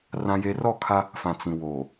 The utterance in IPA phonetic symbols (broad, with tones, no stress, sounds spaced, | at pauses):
r ã˦ j e˦ r ɔ˦˨ kʰ a˦ | f ã˨ t͡s ĩ˨ w oː˨